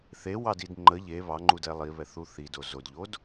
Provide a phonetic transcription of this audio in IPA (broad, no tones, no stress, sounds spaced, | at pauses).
θ e w ɑ d i d ŋ͡ǃ ə ʎ e β ɑ ŋ͡ǃ u d ɛ lˠ i β ɛ θ u θ i d o z o d ʎ o d